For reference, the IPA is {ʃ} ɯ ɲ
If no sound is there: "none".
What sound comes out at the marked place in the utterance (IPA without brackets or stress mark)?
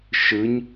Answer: ʃ